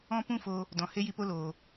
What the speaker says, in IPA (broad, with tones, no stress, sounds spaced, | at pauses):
ɔ̃˧ p ũ˦ f o˧ | d ɔ̃˨ h e˦ j i˧ p o˦ l oː˨